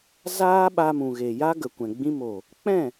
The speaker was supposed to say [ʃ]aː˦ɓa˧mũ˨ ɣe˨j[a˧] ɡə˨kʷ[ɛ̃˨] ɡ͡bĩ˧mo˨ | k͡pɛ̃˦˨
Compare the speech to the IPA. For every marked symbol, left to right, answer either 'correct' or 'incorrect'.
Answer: incorrect, incorrect, correct

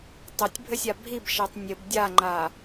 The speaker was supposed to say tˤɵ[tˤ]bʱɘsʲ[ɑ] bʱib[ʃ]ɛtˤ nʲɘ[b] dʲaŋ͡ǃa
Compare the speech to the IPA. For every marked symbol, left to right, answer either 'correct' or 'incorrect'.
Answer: incorrect, incorrect, correct, correct

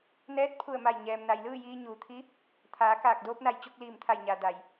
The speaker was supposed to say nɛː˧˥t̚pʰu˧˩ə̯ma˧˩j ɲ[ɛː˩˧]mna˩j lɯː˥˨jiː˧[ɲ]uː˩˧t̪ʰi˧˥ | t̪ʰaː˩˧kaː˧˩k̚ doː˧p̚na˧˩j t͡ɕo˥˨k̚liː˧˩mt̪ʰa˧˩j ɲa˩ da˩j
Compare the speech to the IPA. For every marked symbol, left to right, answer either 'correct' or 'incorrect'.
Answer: incorrect, correct

